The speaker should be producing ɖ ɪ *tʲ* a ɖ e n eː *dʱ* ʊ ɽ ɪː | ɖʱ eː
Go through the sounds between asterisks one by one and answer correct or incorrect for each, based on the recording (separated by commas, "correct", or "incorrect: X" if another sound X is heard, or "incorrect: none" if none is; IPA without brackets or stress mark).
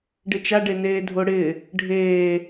incorrect: t͡ʃ, correct